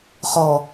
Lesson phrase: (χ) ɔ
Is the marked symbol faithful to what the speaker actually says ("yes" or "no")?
yes